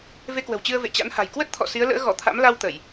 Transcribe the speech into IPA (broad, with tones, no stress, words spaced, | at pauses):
ve˧kwə̤˨˩wt͡ɕɨ˧ə̯ vḛ˧˨t͡ɕa̰˧˥nha̤˨˩j kwə˦˥t̚t̪ʰɔ̰˧˨ si˨˦ə̯lə̰ː˧˥ɣɔ˧˩ t̪ʰa̰˧˥m la˧w t̪ə˧˩˨j